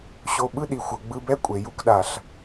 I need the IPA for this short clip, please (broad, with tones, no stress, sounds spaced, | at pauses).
ɕ o˧ ɓ ɯ˥ ɗ i˩ xʷ ɤ˩ ɡ͡b ɯ˧ b ɛ˥ kʷʼ e˩ j u˥ k ɗ a˩ ɬ